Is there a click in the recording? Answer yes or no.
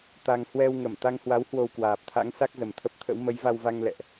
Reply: no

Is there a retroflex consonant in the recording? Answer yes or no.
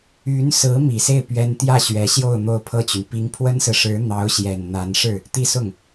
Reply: yes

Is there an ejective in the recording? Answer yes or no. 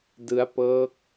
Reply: no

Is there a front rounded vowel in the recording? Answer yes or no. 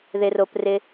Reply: no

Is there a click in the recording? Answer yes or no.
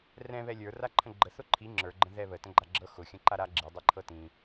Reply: yes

